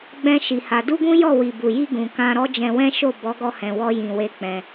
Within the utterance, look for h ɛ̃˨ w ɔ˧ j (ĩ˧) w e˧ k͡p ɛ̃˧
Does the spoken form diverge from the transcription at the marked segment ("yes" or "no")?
yes